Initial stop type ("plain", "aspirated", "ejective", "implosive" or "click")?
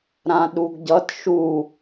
implosive